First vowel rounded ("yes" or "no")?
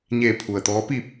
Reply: no